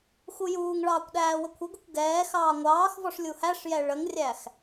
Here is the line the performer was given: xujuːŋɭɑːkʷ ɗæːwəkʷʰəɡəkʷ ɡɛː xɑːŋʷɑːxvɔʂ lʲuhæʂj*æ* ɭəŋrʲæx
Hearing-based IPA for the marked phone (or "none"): ɛ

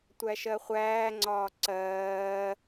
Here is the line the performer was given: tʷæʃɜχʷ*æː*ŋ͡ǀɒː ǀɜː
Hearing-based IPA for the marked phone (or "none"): æː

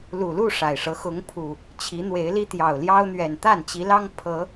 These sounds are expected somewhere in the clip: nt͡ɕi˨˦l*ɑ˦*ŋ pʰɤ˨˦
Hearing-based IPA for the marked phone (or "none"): ɑ˦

